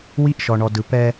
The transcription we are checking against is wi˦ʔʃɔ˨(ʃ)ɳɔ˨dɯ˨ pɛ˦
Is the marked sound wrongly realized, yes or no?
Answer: yes